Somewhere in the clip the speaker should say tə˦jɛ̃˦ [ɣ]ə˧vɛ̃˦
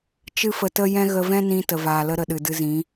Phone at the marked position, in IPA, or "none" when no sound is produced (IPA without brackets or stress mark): ɣ